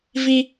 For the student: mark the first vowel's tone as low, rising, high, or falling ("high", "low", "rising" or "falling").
high